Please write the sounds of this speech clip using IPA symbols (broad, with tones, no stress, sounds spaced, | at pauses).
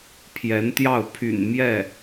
pʰ j ɛ˧˥ n t̪ j ɑ˥˩ ʊ̯ pʰ y̰˨˩ n m j ɛ˥˩